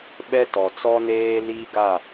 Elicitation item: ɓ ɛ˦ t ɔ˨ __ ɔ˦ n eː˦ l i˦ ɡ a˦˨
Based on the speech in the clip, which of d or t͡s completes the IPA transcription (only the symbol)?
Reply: t͡s